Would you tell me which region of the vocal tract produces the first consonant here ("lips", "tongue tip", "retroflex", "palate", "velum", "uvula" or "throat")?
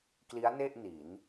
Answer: velum